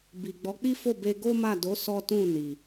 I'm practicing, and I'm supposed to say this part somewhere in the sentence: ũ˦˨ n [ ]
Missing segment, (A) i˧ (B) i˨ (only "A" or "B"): B